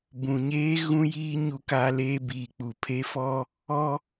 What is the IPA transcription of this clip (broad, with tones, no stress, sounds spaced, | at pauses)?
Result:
b ũ˨ ɲ eː˦ ɣ ũ˦ j iː˦ ɲ u˦ k a˦ l eː˦ b iː˨ k͡p u˨ pʰ e˦ f ɔ˦ | ɔ˦